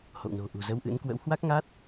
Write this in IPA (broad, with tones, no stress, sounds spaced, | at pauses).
h o̰˧˨ w n o̤˨˩ ʔ ṳ˨˩ z ə˧ w ʔ ɨ̰˧˥ n k w ə̰˧˥ w h w a˦˥ k̚ ŋ a˦˥ t̚